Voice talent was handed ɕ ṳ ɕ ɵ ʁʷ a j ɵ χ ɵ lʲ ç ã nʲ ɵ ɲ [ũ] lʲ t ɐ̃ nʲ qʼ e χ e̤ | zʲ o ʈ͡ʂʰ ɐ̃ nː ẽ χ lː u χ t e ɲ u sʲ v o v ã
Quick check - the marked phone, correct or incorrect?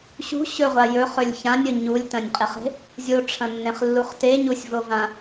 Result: incorrect